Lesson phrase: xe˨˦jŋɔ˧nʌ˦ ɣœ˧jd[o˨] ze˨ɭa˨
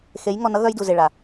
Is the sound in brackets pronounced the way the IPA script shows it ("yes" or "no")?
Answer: no